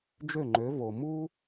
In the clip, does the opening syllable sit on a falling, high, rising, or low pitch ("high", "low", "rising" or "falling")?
falling